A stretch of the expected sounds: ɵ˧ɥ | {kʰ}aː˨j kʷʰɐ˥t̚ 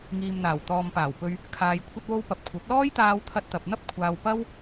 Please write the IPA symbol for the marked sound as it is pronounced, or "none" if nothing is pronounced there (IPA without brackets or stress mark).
kʰ